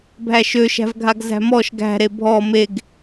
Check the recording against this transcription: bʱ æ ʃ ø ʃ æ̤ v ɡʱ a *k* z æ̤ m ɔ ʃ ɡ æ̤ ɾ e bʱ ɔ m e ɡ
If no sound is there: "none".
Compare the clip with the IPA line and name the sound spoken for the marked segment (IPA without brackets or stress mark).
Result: ɡ